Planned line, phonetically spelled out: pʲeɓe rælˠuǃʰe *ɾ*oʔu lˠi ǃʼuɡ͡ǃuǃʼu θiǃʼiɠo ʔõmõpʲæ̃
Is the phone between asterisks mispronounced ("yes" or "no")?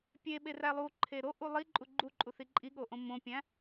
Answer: no